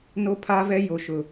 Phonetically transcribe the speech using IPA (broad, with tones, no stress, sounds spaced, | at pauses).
n o˦ pʰ aː˦ v ɛ˦ j o˦ ʃ ʊ˦